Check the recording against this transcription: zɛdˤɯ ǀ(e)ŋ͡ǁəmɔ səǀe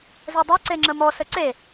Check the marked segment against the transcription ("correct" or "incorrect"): correct